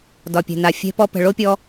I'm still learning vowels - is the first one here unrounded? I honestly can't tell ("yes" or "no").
no